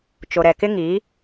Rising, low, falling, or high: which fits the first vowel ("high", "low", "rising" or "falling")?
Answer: low